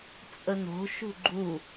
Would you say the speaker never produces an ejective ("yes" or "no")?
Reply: no